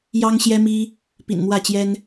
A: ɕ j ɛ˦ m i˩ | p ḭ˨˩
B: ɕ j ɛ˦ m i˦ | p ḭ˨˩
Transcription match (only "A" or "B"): B